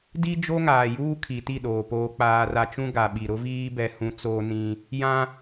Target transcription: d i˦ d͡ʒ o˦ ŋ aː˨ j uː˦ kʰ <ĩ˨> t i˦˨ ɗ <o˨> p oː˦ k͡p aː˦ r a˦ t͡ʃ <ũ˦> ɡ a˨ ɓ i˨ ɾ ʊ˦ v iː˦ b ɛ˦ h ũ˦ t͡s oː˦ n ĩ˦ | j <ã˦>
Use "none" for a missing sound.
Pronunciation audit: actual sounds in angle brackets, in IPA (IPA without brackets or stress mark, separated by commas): i˨, oː˨, ũ˦, ã˦